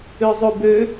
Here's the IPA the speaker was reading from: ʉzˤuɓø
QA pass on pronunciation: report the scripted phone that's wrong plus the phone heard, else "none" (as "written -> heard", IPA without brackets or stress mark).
ɓ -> b